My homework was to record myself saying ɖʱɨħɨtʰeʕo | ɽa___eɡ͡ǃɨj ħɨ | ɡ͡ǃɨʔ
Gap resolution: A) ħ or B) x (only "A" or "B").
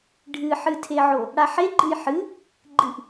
A